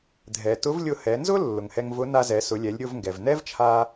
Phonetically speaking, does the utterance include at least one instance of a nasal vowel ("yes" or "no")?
no